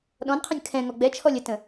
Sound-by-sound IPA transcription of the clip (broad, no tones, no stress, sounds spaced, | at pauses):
ɗ ɔ̃ n qʰ ə̃ nʲ kʰ ɛ̃ ŋ ɔ ɡ͡b ɛ t͡ʃʰ ɔ lʲ ə t ə̃